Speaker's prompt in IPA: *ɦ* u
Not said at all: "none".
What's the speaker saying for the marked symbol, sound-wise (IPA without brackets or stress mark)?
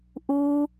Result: ʔ